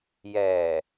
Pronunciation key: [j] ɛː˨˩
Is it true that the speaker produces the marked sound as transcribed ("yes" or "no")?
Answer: yes